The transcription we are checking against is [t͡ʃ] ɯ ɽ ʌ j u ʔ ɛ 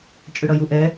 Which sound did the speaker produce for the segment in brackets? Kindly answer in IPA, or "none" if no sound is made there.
t͡ʃʼ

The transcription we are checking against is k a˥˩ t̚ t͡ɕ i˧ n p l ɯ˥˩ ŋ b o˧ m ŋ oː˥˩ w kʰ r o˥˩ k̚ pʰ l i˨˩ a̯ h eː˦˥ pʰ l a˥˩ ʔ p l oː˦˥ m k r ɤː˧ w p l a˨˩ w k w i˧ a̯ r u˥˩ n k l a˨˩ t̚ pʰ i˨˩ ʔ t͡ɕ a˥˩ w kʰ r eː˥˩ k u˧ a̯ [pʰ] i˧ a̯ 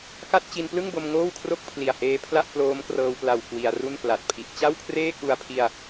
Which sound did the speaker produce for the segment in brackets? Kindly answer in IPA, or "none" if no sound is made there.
pʰ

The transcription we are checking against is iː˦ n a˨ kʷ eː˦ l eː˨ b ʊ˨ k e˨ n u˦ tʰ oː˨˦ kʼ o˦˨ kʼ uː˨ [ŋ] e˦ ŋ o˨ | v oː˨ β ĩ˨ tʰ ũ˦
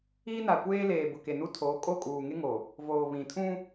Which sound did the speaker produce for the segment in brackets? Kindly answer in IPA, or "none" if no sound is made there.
ŋ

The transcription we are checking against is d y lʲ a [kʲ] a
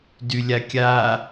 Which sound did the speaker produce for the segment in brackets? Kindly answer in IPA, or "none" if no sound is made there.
kʲ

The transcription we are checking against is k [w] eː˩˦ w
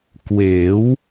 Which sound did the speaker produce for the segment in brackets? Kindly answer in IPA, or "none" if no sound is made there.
w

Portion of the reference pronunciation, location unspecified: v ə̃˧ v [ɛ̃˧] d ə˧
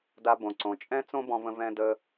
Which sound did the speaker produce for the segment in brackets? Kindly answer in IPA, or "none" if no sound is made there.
ɛ̃˧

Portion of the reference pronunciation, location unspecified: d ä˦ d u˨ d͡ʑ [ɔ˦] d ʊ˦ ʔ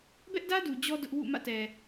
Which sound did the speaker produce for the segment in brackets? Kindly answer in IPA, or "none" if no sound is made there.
ɔ˦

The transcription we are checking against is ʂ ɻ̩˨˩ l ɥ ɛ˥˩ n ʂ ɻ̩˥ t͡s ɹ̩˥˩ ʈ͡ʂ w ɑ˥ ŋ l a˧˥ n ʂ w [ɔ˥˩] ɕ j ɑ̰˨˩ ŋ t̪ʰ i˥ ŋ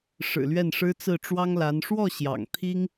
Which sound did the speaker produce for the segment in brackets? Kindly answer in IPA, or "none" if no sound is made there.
ɔ˥˩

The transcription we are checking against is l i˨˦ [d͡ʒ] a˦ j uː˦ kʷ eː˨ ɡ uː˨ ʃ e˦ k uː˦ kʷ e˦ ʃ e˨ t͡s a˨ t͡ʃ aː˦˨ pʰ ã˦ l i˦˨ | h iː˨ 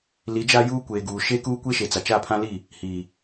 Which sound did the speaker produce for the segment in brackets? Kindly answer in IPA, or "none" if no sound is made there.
d͡ʒ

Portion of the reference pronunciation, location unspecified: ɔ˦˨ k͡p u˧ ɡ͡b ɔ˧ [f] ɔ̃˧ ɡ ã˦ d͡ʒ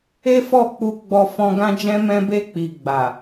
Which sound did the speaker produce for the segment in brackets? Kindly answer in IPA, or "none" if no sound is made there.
f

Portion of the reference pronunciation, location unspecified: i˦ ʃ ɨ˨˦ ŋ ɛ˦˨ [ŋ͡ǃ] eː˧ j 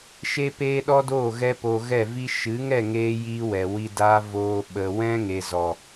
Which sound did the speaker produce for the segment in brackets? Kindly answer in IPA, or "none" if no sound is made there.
ŋ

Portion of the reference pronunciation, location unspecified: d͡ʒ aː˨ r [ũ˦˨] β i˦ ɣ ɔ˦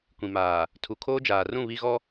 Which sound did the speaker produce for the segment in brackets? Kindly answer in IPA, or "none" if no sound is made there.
ũ˦˨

